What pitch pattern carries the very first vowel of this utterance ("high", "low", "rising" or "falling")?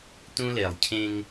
high